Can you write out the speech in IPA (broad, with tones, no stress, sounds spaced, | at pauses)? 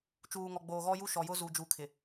t͡ʃ uː˨ ŋ ɔ˨ ɡ͡b oː˨ ɣ ɔ˦ j u˦ ʃ ɔ˨ j ʊ˦ z u˨ d͡ʒ u˨˦ kʰ ɪ˨